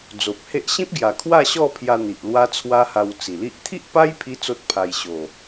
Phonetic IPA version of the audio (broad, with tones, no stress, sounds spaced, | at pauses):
d͡z o˨ p̚ h e˦ ʔ ɕ ĩ˦ p̚ ɡ j a˨˩ kʰ w a˥˧ ɕ ɔ˥˧ pʰ j a˧ n̪ i˨ ʔ l w a˦ t͡sʰ w a˦ h a˧ w t͡s i˨˩ l i˦ ʔ t̪ʰ i˦ ʔ p a˦ j pʰ i˧ t͡s o˦ t̚ pʰ a˧ j ɕ o˨˩